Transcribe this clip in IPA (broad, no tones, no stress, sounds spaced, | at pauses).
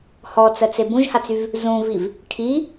h ɔ t͡s ɜ t͡s e b ũ ʒ h a t͡s y v | z ũ v i v | ʈʰ i